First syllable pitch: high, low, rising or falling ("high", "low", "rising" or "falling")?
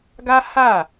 high